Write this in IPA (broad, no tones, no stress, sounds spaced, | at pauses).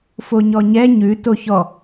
f o ɲ ɔ ɲ ɛ ɲ ʉ t o ç ɔ